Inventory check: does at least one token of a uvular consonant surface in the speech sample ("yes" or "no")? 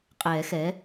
yes